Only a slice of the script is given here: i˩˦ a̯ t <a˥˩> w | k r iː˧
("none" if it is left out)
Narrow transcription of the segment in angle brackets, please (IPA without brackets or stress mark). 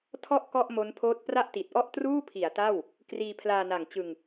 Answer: a˥˩